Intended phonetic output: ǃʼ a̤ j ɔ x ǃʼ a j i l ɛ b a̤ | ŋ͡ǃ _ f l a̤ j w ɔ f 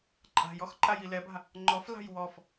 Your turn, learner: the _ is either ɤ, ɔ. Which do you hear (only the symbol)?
ɔ